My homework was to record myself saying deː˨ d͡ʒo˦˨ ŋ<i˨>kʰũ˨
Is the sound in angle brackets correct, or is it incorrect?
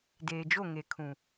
incorrect